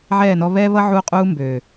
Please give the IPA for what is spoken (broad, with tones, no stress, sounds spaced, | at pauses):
ʕ ɛː˦˨ n ɔ˦ β ɛː˦ β ʌ˦ ʕ uː˦ qʼ uː˦ m b øː˨